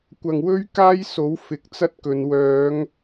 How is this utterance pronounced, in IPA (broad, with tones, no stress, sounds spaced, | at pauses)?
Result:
kʷ ɐ˨ ŋ w ɵ˥ ɥ k aː˥ j s o˨˥ w f ɪ˨ k̚ t͡s ɐ˥ t̚ k ɵ˨˧ n w œː˨˧ ŋ